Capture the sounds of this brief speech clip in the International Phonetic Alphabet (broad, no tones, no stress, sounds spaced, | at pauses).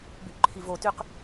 b y ʔ ǃʰ i v o t y q